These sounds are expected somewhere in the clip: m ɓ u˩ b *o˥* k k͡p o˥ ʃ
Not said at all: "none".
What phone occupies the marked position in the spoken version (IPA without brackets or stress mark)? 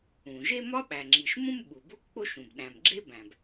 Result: o˥